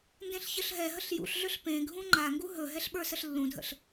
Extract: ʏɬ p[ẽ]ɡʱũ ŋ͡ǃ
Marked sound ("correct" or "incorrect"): correct